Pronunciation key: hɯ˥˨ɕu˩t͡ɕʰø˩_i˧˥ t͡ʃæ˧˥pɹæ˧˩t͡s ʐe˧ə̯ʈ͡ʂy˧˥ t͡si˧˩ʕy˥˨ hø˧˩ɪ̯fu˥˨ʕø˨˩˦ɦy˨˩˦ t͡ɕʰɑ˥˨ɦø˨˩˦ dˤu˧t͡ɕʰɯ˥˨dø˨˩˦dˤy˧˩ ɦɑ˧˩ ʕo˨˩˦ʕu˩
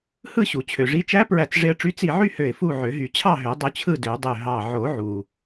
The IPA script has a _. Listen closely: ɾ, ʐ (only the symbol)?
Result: ʐ